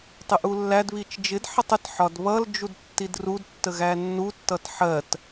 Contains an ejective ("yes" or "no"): no